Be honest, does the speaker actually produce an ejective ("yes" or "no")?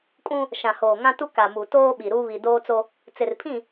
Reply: yes